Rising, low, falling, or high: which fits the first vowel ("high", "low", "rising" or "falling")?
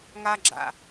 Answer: high